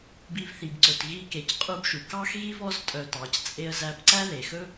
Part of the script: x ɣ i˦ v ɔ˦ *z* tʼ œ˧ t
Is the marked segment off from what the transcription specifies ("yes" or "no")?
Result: no